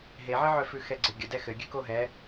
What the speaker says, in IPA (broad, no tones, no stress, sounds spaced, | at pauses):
ɦ e ʕ ɘ ʕ œ f ʉ x ɛ ɡ͡ǀ ɘ ɡʲ ə d ɛ x ɘ ɡʲ ʉ k o ɦ ɛ